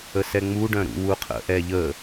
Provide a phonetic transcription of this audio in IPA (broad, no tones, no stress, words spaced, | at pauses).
əsɛŋ͡muɖœ̃ ɾṵwuqʰə̰ ʔɛʎə